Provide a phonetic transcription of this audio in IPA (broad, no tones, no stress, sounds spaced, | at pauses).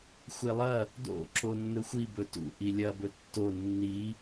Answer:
xʷ e lˠ ɐ | d o̰ ǁ o nː ɵ xʷ i b ɵ t ṵ ʔ i lʲ ɐ b ɵ tː o nː i